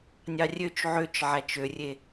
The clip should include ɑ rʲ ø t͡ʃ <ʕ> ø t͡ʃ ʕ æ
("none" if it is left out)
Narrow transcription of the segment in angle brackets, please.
ʕ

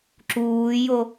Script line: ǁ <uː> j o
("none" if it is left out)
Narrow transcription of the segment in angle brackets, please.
uː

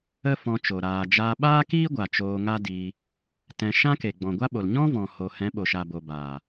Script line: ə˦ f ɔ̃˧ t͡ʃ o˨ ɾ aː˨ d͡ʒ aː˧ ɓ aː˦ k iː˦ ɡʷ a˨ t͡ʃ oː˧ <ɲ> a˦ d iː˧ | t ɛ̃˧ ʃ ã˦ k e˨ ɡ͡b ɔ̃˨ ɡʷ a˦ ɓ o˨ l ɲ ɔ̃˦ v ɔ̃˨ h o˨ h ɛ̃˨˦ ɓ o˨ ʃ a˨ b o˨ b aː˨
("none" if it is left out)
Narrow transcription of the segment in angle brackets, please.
ŋ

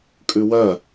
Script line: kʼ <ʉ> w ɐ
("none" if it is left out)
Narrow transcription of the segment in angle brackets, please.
ʉ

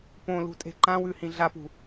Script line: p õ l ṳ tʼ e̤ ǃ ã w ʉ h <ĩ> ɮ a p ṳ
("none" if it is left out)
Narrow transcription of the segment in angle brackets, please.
ĩ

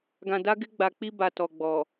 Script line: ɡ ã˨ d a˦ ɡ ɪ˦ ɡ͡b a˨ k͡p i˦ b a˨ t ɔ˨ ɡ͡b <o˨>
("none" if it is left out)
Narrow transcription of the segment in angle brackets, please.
ɔ˨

